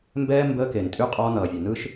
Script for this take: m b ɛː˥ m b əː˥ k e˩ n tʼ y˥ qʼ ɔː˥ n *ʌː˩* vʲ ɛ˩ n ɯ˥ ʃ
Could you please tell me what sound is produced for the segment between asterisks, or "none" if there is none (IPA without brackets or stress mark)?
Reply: ʌː˩